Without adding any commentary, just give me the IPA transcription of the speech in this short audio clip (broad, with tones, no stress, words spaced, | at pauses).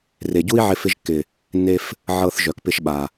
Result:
re˨ɟu˦i̯ʕɪ˧ fɪ˧ʒkːɪ˨ | nːe˦f | ʕɤ˧θ ʒœ˨kpɪ˧ʃɓa˨